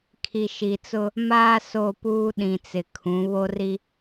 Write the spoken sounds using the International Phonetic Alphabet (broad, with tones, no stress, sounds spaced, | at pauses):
kʰ i˨ ʃ i˨ t͡s ʊ˦ | m aː˦ s o˦˨ p uː˦ ɗ ĩ˨ t͡s ɪ˨ kʰ ũ˨˦ β o˦ r i˦